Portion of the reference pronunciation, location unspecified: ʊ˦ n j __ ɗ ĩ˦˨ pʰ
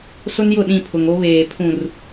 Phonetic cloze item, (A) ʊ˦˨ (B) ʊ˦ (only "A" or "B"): A